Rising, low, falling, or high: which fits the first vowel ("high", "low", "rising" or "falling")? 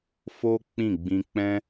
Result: high